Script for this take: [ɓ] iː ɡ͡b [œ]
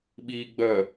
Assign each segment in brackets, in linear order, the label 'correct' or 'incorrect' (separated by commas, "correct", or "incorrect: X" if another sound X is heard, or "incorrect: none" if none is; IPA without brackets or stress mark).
correct, correct